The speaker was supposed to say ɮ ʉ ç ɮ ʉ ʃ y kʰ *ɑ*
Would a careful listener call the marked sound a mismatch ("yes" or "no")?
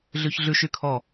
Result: yes